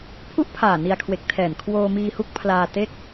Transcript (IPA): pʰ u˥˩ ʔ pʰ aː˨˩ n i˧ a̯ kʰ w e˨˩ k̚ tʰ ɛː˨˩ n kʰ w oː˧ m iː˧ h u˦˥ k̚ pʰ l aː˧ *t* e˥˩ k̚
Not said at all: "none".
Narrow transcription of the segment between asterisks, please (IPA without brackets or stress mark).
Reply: t